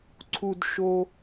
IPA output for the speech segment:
ǀʰ u˧ d ʃ o˧

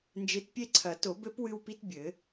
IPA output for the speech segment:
n d͡ʒ e˨˥ t pʲ e˦ ǀʰ ɐ˨˩˦ t o˨˩˦ b ɘ˦ p w ɨ˦ w p i˦ t bʲ ɘ˨˩˦

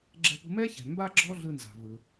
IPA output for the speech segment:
ɡ͡ǁ ɛ̤˧ p ṳ˧ m ɛ˥ ç ɛ̤˩ m b a˥ ɡ͡ǁ ɔ˥ ɮ ɯ˧ n z a̤˩ v ɯ˩

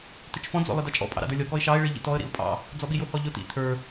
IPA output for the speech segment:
t ɪ t͡ʃ f ɔ̃ d͡z ɔ̰ lˠ ɪ d ɑ t͡ʃʼ ɔ̰ pʼ ɑ̰ ɾ ɑ̰ d ə˞ lʲ ɔ k ɔ ɪ̯ ʃ ɑ ɪ̯ ɭ i ʎ ḭ t ɔ ə̯ ɾ ḭ ʊ̯ pʼ ɑ̰ | d͡z ɔ ɓ i j ʊ h ɔ ʎ ʊ t ḭ t̪ʰ ə˞

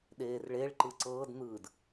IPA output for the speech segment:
ɗ eː r ɭ e ɭ ǃ ɯ ǀ ɤː d n̪ ɯː d

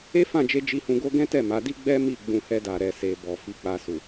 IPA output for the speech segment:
e˦ f ã˦˨ d͡ʒ e˧ d͡ʒ i˧ h ũ˧ ɡ o˦ ɡ ɛ̃˦ t ɛ˦˨ m a˨˦ d i˦ ɡ͡b ɛ˦ m i˦˨ ɡ͡b ũ˧ h ɛ˧ d a˨ ɾ ɛ˨ s e˨ b ɔ˨ f i˨ k͡p a˨ s u˨

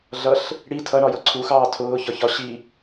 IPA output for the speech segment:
ɮ ʌ ɬ | ɽ i tʰ ʌ ɳ ɒ j ʌ ǀʰ u x ɑː tʰ ʊː ç ɒ ç ɒ ɕ i

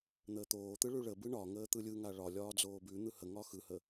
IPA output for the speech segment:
n̪ əː t̪ oː t̪ ɯ ɭ ʉ ɭ ə b ɯ ɳ ɒ ŋ əː t̪ ɯ lʲ ɯ ŋ a ɭ ɒ lʲ ɒː d͡z oː b ʉ n̪ ɯ h ə ŋ ɒ x ɯ h ə

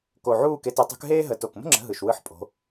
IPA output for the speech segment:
k o˨˩ ʕ uː˦˨ k e˨˦ t e˨˦ tˤ ṳ˨˦ k ɦ eː˥ ɦ ə˨˦ t o˨˩ k m ə̤˥ ŋ͡ǁ ə̤˨˦ ɦ ɯ˨˩ ʃ w ɯ˧˥˧ ħ pʼ o̤˨˦

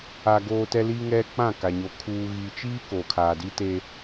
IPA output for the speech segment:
a˦ ɡ oː˦ t ɛ˦ l i˦ ŋ ɛ˦ k͡p ã˦˨ k a˨ ɲ o˨ kʰ uː˦ ɣ i˦ t͡ʃ iː˦ k o˨ kʰ aː˨ d i˦ t e˦

